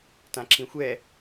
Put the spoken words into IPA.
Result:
tãǁĩxʷɛ

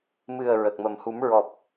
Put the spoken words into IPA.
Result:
mɨ˨˩ə̯ ɹə˨˩k̚mə˨˩m hu˨˩˦m ɹɔ˨˩p̚

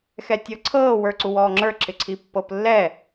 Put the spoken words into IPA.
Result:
xɛtʲɤǀʰɤː wə˞ǀuwɔːŋ͡ǁə˞ ǁɪǀʰipːɤplːɛ

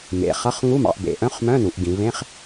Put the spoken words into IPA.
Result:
mḛ˩˧χʌ˧˥˧χ ŋu˧˥˧mɑ̰˩˧ʔbḛ˩˧ ʔœ̃˧˥˧χmœ̃˧˥˧n̪u˩˧ʔ ɡĩ˩˧vẽ˧˥˧χ

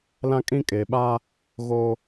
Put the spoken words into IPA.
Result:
lã˦kʼĩ˦kʼeː˨ ɓa˦ | ɣo˦

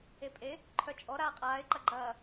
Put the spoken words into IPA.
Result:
epʼe | ǃʰœt͡ʃʼɔ ɾaːqʼaːɪ̯ ǃɐɡ͡ǃɐː

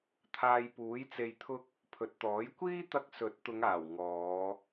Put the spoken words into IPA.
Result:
t̪ʰaː˧jpuː˨˥jt͡se˧jt̪ʰʊ˥k̚ | pʰɵ˨t̚t̪ɔː˨˥j kʷiː˥ t̪ɐ˧k̚ sɵ˨˥t̚ t̪ʊ˨˧ŋaː˨˩w ŋɔː˨˧

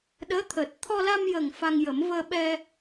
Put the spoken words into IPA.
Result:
ɗəː˧˥t̪ʰəː˨˩t̚ t̪ʰɔ˧la˧mjə˨˩ŋ fa˧ŋjə˨˩˦m vəː˧ɓɛ˧

